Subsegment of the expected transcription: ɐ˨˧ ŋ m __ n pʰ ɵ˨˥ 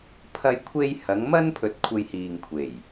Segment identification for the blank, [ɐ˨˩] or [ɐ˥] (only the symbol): ɐ˥